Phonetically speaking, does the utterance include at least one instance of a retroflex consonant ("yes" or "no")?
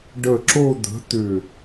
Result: yes